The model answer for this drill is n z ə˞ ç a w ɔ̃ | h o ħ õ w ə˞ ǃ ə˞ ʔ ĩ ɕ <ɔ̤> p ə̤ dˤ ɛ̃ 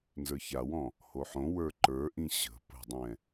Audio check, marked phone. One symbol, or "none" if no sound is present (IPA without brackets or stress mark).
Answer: ə̤